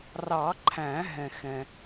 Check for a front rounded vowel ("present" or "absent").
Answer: absent